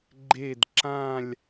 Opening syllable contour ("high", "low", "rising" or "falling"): falling